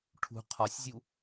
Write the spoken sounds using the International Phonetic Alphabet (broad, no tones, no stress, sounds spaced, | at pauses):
ʈʰ ṳ qʰ ɒ sʲ zʲ u